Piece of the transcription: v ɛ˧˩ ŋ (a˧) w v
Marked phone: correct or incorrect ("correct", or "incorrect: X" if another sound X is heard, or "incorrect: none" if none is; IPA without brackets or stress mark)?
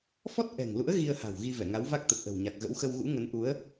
incorrect: a˨˦